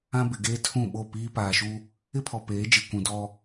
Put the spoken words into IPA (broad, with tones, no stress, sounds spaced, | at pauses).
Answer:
ã˦ b ɪ˨ ɡ eː˦ tʰ ũ˦˨ ɓ o˦˨ p iː˦ p aː˨ ʃ u˦ | ɪ˦ pʰ ɔ˨ p eː˨˦ d͡ʒ i˨ kʷ ũ˨ d ɔ˦